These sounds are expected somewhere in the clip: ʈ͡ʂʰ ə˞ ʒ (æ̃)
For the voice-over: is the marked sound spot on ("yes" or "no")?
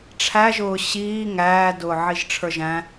yes